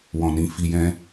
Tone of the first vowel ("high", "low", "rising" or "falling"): low